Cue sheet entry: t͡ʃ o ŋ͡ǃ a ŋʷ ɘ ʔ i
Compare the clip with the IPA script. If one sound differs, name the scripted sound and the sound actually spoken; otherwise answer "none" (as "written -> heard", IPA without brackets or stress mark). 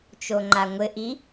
none